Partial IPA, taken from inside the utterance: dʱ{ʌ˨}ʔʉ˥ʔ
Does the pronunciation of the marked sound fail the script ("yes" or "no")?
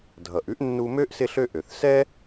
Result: yes